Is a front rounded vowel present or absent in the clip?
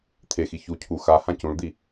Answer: absent